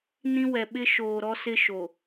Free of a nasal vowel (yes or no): no